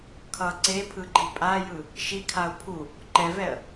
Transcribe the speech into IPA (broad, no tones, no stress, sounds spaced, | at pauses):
kʰ ʌ ǀ e pʰ ɯ ɡ͡ǃ i pʼ a j ɯ | ʃ i kʰ a ʊ̯ pʰ u | ǃ ɛ v ɛ ə̯